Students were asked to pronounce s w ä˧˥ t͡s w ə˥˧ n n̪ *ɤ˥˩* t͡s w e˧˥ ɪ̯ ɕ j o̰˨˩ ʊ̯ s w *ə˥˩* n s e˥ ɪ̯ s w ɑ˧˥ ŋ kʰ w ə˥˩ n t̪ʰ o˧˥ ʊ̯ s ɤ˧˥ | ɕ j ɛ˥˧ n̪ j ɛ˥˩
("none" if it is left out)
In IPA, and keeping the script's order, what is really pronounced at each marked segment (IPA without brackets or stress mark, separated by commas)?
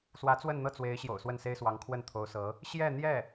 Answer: ɤ˥˩, ə˥˩